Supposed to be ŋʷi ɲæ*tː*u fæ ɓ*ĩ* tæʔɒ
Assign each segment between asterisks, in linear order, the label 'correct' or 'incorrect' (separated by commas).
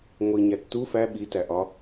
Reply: correct, incorrect